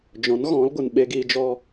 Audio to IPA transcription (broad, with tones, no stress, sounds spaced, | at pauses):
d͡ʒ ɔ̃˨˦ n ɣ ɔ̃˨˦ l ɡʷ ɨ˨ n ɓ e˧ ɡ iː˧ d͡ʒ ɔ˦